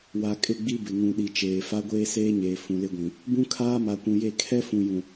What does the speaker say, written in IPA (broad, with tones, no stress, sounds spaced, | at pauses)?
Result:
w a˨ kʼ ɪ˦˨ ɡ͡b i˦ b ɪ˨ ŋ ũ˨ ɗ i˨ t͡ʃ eː˨ f a˦ ɡʷ eː˦ s eː˦ ɲ eː˨ f ũ˨ l ɪ˦ ɡʷ ĩ˨ | b ũ˦ kʰ aː˦ m a˨ kʷ ũ˨ j e˦˨ kʰ ɛ˦ f ũ˨ j ũ˨